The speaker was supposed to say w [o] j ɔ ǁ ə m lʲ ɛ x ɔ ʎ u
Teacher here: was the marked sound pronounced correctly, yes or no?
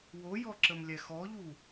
yes